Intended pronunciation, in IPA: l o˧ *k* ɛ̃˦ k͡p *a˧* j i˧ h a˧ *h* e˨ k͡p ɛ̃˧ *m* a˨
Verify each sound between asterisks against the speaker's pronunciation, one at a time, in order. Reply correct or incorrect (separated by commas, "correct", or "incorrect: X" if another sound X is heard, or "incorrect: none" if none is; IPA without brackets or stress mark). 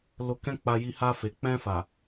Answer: correct, correct, incorrect: f, incorrect: f